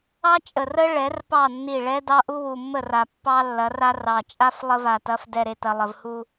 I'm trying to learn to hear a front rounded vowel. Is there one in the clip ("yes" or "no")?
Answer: no